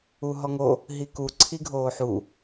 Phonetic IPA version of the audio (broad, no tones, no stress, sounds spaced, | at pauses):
u ɦ ɔ ŋ o | ɦ i k u ǀʰ i ɡʱ oː ħ u